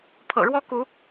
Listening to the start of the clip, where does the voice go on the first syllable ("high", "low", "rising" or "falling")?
low